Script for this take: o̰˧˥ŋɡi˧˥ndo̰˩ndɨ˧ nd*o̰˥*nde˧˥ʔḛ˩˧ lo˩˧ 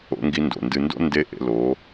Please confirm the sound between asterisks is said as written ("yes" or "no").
yes